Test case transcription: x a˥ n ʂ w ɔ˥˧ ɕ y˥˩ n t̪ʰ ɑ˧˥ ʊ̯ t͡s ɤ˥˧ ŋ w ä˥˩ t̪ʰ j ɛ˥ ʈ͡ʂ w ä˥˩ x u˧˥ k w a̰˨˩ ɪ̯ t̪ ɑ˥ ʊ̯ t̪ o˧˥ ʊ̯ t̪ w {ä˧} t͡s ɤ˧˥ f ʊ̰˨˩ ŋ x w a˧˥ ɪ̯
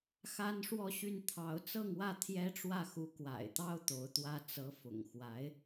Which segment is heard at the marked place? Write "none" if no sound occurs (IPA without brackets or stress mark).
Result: ä˥